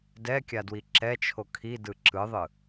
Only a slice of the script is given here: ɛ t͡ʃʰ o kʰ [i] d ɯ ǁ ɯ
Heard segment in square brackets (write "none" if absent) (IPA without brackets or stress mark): i